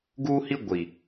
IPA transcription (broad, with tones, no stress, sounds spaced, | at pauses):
ɡ uː˦ h i˦ ɡʷ i˨